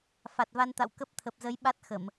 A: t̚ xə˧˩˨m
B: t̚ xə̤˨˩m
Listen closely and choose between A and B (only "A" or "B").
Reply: A